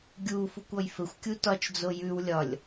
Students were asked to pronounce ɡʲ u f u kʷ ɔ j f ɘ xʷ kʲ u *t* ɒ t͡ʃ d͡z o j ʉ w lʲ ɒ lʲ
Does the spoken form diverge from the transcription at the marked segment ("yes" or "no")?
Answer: no